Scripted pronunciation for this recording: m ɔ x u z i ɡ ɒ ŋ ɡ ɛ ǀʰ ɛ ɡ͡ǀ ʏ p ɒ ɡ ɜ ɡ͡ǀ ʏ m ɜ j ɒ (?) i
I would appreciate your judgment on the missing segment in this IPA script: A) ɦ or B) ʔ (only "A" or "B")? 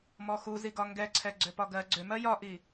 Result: B